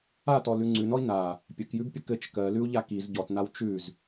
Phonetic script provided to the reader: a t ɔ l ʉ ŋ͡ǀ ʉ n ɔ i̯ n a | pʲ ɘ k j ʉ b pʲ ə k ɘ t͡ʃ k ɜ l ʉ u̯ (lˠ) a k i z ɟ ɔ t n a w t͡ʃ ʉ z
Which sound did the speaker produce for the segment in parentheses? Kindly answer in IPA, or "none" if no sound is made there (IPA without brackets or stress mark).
ʎ